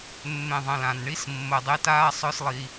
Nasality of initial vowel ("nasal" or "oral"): nasal